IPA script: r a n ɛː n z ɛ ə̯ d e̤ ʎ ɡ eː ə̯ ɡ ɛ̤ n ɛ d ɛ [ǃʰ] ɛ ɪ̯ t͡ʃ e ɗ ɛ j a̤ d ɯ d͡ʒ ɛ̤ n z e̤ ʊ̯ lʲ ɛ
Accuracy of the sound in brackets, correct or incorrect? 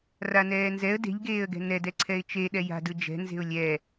incorrect: ǀʰ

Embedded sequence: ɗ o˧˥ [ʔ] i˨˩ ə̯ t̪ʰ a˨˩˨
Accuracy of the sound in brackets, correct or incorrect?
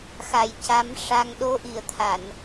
correct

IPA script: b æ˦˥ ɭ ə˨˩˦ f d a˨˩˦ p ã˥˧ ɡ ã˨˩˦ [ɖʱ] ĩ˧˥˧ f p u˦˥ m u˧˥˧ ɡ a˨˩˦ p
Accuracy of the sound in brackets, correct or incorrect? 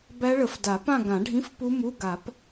correct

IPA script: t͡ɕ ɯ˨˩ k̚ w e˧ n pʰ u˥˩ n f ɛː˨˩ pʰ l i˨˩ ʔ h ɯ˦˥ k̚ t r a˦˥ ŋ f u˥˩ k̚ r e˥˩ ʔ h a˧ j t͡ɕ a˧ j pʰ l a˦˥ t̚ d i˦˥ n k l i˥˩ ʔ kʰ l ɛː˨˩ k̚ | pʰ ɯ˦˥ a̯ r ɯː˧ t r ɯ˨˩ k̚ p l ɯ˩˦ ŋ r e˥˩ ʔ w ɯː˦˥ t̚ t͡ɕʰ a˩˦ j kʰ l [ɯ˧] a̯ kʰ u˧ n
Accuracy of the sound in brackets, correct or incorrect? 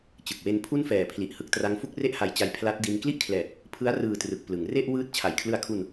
correct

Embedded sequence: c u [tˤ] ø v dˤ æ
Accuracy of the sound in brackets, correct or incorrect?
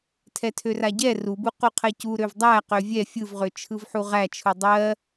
incorrect: ɾ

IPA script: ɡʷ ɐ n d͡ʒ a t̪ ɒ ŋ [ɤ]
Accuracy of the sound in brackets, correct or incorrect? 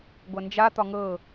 correct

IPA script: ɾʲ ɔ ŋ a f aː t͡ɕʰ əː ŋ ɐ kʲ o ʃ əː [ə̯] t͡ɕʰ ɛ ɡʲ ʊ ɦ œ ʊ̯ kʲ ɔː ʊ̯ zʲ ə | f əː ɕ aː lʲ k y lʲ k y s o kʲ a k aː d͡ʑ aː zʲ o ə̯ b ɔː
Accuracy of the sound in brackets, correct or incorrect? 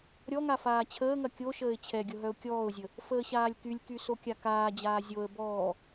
incorrect: ɪ̯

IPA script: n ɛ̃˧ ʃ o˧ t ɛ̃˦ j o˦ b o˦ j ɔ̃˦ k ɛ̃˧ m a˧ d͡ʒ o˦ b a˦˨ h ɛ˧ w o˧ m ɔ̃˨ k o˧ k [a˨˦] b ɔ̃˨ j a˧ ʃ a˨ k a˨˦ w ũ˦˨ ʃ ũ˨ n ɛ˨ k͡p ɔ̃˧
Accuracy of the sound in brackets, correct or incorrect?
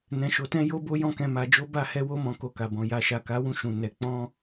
incorrect: a˨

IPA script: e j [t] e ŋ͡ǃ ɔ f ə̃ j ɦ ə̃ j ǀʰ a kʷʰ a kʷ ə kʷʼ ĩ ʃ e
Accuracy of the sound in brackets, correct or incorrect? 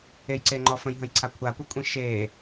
incorrect: ǀ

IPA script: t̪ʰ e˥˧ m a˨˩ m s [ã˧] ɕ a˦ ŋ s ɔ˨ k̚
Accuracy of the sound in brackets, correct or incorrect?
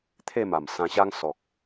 correct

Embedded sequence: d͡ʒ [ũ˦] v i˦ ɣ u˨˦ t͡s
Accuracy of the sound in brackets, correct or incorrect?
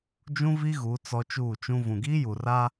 correct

